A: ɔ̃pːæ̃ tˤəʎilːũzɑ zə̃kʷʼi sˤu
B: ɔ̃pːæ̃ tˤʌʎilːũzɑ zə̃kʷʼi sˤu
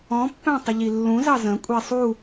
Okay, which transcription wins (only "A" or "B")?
A